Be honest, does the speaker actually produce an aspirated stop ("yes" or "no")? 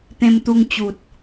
no